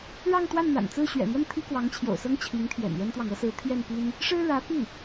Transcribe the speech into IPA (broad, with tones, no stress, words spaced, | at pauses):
ɻɑ˥˧ŋ t̪wa˥˩nn̪a̰˨˩nt͡sɹ̩˥˩ ɕɥɛ̰˨˩n̪wə˥˩n t̪ʰi˥kwɑ˧˥ŋt͡ɕʰjo̰˨˩ʊ̯sɤ˥ŋ t͡ɕʰi˧˥ŋt̪ʰjɛ̰˨˩njɛ˥nt̪wɑ˨ŋ ɤ˧˥sɹ̩˧˥ t̪ʰjɛ˥˩npi˥n | ʂɻ̩˥ɻä˧˥pi˥˩